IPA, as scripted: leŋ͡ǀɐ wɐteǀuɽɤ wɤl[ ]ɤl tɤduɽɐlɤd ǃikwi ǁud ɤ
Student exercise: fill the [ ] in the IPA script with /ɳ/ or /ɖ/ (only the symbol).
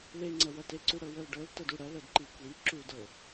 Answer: ɖ